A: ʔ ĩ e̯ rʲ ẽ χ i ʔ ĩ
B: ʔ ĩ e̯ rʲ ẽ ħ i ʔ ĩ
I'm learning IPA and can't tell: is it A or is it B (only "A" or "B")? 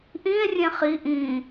A